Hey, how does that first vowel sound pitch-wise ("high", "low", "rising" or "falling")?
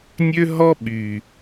high